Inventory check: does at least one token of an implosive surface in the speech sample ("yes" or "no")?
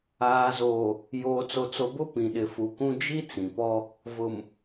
yes